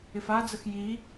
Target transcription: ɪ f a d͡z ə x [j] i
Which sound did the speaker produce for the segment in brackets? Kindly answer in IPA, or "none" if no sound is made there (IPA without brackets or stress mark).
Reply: j